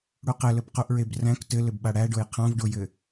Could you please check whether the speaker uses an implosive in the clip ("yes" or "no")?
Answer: yes